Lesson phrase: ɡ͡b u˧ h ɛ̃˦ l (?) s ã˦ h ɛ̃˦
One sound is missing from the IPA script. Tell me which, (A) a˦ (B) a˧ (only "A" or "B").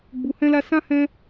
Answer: A